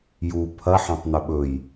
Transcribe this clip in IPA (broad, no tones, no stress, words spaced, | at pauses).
ju pʰɐ ħãtˤnɵɓɵj